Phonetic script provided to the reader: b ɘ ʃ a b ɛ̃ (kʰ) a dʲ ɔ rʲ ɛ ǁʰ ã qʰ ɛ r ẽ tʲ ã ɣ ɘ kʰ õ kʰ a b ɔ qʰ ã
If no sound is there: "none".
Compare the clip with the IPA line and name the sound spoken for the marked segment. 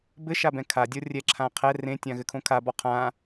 kʰ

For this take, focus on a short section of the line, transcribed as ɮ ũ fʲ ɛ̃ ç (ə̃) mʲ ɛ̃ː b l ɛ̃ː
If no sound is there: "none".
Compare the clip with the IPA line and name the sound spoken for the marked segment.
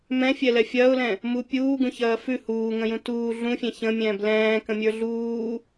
ə̃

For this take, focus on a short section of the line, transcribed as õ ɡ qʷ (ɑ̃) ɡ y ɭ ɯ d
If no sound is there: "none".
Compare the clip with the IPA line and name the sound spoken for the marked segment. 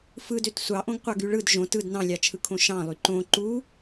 ɑ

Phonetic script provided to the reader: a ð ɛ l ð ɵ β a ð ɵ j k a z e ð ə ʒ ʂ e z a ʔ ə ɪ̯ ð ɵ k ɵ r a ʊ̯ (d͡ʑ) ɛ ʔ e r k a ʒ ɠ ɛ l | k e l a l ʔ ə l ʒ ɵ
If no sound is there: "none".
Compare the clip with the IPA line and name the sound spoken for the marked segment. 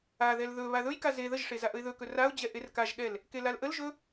d͡ʑ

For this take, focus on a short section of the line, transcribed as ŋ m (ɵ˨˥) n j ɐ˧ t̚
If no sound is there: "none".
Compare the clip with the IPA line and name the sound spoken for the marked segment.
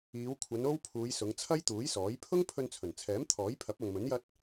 ɵ˨˥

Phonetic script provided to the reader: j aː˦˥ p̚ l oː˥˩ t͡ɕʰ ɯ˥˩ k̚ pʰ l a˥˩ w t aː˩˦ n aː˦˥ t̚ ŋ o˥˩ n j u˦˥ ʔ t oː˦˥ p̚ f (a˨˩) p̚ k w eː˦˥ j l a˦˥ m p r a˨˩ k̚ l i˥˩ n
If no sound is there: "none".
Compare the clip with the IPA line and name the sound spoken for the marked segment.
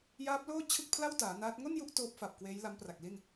a˨˩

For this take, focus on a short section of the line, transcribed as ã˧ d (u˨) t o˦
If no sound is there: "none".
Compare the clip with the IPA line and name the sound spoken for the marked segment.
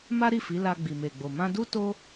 u˦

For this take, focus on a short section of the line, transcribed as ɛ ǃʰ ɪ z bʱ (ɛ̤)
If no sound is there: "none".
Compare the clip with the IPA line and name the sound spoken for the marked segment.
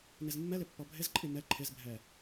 ɛ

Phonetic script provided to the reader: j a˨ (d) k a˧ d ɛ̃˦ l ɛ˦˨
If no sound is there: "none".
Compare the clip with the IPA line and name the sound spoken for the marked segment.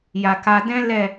none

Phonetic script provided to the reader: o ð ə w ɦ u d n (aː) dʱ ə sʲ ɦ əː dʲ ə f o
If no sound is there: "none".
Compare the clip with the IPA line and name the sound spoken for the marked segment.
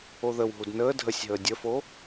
əː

